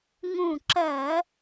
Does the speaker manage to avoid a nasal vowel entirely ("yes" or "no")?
no